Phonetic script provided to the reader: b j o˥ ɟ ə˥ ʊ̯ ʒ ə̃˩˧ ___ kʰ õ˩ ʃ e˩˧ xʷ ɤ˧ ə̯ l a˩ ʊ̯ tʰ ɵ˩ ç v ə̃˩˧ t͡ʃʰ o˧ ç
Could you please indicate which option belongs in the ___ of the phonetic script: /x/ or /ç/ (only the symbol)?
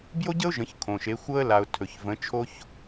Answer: ç